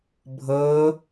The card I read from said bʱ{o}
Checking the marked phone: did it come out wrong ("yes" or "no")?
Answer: yes